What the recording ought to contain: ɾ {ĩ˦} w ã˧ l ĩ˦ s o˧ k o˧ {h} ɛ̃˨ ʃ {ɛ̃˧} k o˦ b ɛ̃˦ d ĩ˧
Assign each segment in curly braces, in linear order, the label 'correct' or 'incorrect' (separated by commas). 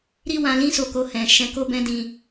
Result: incorrect, correct, incorrect